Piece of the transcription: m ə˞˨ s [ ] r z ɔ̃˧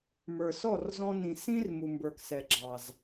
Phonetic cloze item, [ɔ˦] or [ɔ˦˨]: ɔ˦˨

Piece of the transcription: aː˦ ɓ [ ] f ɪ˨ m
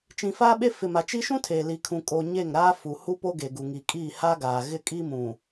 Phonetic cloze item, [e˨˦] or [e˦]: e˦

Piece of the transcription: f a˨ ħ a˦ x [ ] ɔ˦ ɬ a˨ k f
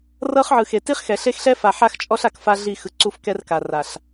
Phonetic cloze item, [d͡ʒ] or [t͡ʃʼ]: t͡ʃʼ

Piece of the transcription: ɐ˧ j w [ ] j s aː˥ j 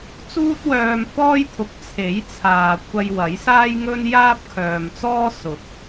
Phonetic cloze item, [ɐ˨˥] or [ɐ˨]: ɐ˨˥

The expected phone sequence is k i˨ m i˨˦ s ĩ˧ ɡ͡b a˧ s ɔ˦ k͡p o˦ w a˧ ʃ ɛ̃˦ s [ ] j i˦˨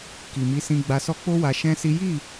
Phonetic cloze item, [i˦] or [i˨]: i˦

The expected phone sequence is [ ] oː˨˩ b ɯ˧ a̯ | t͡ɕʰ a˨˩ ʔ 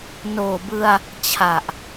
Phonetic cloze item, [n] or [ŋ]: n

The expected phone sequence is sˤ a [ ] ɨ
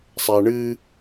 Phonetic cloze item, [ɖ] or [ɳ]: ɳ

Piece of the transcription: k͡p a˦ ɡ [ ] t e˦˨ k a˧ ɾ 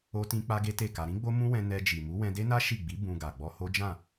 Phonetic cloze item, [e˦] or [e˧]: e˦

